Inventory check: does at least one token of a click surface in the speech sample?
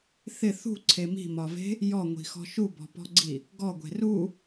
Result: yes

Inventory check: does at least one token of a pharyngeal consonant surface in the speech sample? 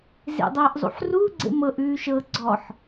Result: yes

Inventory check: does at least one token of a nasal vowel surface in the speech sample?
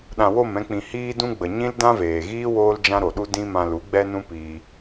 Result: yes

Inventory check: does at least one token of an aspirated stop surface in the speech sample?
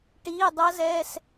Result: no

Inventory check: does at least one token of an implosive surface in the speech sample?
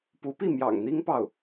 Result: no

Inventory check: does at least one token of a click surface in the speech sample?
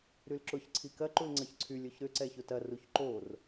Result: yes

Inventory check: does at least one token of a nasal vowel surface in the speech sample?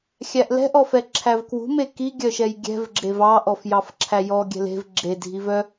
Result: no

